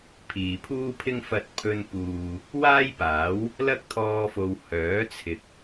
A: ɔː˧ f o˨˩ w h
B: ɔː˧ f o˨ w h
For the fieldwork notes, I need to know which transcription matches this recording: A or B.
B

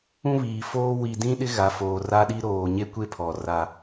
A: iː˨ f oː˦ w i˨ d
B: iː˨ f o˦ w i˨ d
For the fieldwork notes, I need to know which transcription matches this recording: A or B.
A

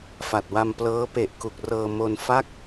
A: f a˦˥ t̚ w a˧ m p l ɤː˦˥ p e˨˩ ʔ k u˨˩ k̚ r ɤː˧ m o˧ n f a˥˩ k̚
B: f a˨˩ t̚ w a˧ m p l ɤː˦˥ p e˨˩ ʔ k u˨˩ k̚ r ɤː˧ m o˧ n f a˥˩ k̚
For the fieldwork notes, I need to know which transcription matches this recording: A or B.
B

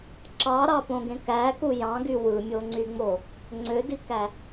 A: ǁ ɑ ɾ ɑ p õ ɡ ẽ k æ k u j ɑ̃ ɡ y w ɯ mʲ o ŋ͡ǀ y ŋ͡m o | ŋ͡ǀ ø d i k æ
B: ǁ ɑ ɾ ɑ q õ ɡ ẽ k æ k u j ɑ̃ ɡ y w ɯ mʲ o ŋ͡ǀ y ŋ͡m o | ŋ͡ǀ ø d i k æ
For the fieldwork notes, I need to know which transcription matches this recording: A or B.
A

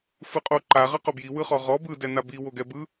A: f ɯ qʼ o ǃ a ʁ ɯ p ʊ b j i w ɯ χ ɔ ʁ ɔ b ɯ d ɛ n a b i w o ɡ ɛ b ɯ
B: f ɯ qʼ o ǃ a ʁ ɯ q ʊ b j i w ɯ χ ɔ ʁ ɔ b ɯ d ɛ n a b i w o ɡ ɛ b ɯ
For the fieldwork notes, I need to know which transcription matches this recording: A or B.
B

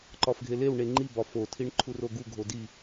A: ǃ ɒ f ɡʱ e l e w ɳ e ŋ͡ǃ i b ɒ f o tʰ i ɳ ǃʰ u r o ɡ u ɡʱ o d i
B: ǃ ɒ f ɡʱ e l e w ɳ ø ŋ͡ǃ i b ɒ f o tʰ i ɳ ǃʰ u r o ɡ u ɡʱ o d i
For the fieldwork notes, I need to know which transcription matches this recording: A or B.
A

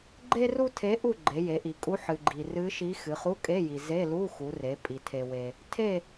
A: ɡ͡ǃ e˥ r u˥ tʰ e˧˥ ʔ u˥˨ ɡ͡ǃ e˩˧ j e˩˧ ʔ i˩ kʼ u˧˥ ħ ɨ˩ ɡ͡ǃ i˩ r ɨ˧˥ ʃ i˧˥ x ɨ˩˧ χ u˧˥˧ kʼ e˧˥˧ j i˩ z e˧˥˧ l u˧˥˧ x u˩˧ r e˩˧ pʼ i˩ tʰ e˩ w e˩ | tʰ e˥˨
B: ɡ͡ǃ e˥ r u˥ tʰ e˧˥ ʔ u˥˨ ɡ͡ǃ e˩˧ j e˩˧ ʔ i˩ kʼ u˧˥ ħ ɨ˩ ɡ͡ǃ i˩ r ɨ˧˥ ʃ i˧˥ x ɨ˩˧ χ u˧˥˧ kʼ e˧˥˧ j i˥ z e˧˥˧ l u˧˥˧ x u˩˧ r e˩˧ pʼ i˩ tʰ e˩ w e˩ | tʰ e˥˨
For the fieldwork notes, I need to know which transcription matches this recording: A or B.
A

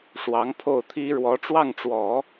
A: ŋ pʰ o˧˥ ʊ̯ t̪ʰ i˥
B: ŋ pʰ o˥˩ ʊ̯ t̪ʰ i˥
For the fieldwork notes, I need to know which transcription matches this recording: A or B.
B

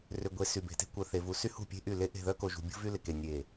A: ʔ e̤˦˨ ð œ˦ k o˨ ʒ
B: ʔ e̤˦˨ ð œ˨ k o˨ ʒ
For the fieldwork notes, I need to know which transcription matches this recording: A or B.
A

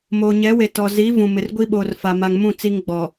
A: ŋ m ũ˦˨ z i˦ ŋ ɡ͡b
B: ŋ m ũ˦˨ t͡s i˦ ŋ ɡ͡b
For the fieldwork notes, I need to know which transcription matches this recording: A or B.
B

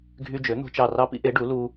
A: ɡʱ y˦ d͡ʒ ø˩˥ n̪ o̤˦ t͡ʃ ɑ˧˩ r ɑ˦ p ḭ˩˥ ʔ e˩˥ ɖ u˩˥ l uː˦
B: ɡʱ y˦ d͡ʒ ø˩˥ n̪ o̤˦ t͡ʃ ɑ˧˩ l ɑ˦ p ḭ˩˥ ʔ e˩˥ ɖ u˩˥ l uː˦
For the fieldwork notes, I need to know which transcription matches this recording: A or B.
A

